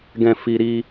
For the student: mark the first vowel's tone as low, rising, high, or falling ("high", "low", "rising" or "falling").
low